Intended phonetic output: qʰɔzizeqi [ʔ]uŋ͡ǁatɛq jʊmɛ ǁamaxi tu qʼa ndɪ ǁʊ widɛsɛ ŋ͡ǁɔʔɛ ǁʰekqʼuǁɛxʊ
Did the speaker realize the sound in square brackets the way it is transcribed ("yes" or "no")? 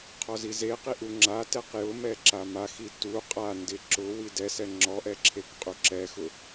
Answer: yes